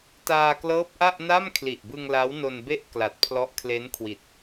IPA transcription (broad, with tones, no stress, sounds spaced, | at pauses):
t aː˧ k l ɤː˦˥ p̚ ʔ a˥˩ ʔ n a˥˩ m kʰ l i˨˩ ʔ b ɯ˧ ŋ l a˦˥ w n o˧ n b e˥˩ ʔ k l a˨˩ t̚ pʰ l ɔ˦˥ ʔ kʰ l e˦˥ n kʰ w i˨˩ t̚